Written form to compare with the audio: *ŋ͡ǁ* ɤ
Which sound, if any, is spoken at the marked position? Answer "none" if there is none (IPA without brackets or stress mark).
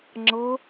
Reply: ŋ͡ǁ